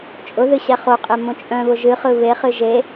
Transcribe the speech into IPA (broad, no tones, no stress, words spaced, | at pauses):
t͡ʃʼʊðɨ ɕɛχoqʼe mõt͡ʃʼœ̃βʊ ʒɨχɯ βeχɨ ʒe